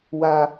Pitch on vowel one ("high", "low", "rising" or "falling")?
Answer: high